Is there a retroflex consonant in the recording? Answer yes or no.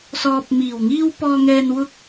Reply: no